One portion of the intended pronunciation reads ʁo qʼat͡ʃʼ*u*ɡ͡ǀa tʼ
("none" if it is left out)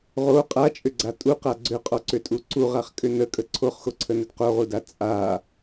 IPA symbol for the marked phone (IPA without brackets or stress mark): ʏ